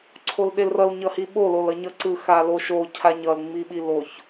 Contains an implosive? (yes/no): yes